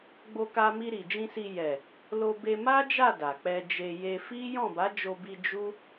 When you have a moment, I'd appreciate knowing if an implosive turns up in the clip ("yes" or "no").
no